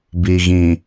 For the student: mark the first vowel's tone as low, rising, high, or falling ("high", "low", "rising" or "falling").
low